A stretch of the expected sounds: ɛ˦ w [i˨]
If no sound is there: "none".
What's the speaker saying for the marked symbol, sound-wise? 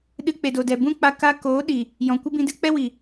i˨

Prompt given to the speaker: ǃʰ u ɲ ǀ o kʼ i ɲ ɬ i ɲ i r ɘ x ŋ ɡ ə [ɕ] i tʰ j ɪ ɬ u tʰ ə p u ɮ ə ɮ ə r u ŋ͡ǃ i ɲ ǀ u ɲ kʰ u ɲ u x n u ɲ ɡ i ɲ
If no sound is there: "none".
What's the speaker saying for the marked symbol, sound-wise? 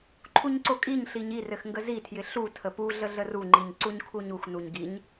z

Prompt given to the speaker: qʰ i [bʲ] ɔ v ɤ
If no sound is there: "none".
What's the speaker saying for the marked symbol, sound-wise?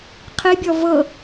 bʲ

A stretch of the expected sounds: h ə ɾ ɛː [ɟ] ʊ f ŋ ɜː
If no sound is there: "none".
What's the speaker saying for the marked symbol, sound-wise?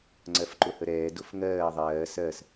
d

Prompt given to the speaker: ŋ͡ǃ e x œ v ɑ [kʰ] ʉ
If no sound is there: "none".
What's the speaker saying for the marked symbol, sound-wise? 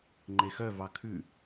kʰ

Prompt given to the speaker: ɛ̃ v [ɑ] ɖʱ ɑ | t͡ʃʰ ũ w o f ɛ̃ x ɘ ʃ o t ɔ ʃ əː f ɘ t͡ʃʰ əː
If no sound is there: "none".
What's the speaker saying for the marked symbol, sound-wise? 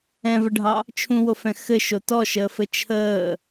ə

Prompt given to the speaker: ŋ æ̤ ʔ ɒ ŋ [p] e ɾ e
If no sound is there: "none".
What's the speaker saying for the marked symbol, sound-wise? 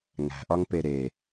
p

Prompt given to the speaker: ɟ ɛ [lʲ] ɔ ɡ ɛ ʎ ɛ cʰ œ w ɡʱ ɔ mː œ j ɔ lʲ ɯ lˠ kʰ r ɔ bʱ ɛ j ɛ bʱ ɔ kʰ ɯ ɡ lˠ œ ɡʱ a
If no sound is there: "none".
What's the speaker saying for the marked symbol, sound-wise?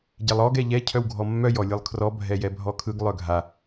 lˠ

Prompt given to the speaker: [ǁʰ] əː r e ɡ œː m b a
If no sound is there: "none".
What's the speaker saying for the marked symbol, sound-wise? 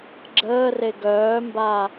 ɡ͡ǁ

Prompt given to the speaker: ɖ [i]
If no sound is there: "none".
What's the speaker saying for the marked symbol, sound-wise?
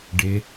ɪ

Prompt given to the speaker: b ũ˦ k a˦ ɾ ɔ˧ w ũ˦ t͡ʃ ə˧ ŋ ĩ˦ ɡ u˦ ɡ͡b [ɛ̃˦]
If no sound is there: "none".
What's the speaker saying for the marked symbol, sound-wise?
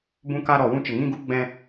ɛ̃˦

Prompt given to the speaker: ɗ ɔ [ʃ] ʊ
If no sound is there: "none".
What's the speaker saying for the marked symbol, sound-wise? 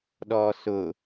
s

